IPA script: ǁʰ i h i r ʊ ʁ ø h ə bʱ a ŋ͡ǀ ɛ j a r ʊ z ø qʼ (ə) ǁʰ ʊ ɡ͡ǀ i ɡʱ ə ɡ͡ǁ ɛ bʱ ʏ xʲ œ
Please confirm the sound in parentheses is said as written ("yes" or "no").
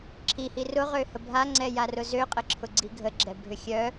yes